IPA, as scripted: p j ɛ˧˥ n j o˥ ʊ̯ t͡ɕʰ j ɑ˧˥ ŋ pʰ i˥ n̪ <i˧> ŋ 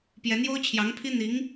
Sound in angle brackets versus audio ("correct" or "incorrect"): incorrect